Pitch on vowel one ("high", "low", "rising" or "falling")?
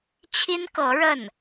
high